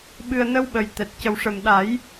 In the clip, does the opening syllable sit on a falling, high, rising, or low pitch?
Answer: low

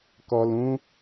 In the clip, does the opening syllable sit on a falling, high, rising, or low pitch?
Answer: low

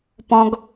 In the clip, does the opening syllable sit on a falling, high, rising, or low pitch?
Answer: high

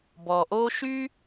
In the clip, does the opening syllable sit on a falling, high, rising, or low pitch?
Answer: low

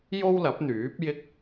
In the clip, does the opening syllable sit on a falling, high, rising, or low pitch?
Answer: high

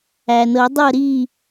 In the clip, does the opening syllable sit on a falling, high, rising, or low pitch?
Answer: low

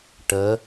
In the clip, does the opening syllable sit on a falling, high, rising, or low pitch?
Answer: rising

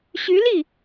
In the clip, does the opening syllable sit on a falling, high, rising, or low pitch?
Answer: rising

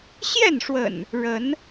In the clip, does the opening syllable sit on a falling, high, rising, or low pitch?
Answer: falling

